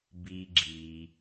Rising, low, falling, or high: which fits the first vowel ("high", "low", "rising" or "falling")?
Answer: high